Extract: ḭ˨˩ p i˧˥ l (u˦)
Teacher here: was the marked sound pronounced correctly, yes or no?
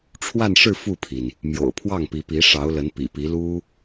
no